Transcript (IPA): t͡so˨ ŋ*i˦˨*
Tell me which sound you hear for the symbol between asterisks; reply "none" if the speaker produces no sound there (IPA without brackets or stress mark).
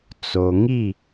i˦˨